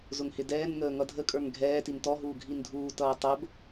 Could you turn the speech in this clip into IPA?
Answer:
zʊŋhɪdɛːnŋəː ŋʌdʱəkʼə˞ŋ ɡʱɛː tintɔɦuː ɡʱindʱuːtʌː tˤəb

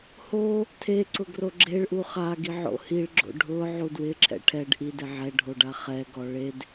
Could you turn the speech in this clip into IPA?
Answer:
ho | tʰeǀʊ ɡroɡ͡ǁeɭʔu χaɡi ʕo̰hiɭɡ͡ǁo̰ ɖʱʊ ʕudwɪǁʰɛ̰ ʈʰɛɖ ʔidɪ ʕɛ ɖʱoɖaχɛɡɔ ɭed

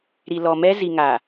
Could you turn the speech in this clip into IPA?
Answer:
ɾi˨lɔ˨ mɛ˦zi˨ŋaː˨

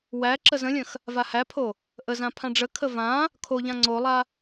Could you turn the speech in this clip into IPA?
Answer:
wæ ǁəzə̃lʲə̃x | vahæpʰo | ʔəzã pʰãɖ͡ʐəkʰə vã | kʰoʎã ŋ͡ǀolˠa

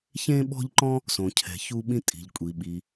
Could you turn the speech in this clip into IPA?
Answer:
çẽ˦ɓɔ̤˦ʎǃɔ̃˦ | sõ˨cʰɛ̤˨ çu˦ɓĩ˦ tʼi̤˨ʎkʷʼi˨ ɓi˨

